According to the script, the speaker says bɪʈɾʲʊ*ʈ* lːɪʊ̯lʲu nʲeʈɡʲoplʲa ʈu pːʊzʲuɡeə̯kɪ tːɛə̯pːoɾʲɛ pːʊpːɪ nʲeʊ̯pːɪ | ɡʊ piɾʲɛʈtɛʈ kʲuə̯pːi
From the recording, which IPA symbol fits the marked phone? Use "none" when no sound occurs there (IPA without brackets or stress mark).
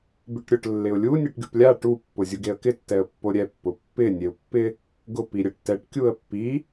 ʈ